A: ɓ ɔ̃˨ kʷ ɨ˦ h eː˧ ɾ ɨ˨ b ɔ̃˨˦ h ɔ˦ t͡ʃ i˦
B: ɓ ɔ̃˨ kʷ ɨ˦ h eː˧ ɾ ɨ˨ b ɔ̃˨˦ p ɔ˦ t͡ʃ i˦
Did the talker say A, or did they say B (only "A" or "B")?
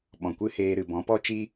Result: B